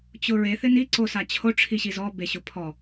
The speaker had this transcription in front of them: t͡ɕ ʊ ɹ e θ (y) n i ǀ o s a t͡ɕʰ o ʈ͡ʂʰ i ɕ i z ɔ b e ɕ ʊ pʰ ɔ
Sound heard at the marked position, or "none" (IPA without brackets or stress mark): ɪ